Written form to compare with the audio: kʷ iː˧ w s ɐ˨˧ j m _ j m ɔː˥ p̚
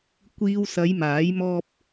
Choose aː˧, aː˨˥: aː˨˥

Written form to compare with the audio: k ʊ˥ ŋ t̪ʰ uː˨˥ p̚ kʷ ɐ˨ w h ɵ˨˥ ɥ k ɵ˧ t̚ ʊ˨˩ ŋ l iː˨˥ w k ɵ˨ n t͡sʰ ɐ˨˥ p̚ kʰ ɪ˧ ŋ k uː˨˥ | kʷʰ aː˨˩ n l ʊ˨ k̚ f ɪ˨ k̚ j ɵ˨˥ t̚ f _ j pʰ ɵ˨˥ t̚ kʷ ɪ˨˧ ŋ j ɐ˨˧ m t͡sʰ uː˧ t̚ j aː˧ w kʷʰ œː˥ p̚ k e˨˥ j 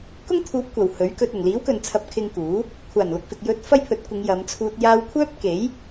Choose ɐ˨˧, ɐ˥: ɐ˥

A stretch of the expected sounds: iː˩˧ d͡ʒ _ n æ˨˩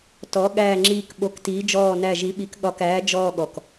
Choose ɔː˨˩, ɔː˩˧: ɔː˨˩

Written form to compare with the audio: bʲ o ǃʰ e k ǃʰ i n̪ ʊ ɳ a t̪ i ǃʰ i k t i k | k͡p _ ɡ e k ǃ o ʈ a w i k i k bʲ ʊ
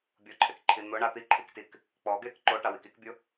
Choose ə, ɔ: ɔ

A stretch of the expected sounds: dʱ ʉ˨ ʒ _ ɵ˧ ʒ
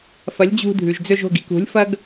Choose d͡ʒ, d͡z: d͡z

